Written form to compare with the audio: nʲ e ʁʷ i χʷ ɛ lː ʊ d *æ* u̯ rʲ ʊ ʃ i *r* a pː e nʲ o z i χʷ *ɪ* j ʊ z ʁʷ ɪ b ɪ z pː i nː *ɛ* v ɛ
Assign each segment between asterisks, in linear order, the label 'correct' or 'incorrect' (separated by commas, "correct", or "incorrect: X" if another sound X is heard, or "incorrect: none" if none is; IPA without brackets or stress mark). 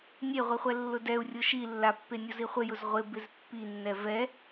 incorrect: ɛ, incorrect: lː, correct, correct